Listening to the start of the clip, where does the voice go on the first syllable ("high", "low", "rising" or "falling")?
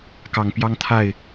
low